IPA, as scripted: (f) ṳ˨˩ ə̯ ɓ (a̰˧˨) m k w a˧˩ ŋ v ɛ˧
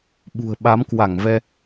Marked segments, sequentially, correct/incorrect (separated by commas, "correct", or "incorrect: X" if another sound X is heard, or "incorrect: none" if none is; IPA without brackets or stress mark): incorrect: ɓ, incorrect: a˨˦